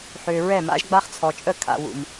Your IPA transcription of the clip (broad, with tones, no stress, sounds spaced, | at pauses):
ħ ø˨ ɹ ɛ˦˨ m a̰˦ ʒ ɡ͡b a˦ χ t͡sʰ ɔ˨ t͡ʃʼ ə˦˨ kʰ a̰˨ w ṵ˨ m